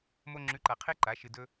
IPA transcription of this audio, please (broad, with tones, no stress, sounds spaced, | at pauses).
m o˧ ŋ͡ǁ ʉ˨˦ ǃ a˨ qʰ e˦ ǃ a˨˦ ʃ ɨ˨ d ɵ˧